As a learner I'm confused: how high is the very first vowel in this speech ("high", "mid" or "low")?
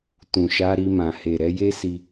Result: high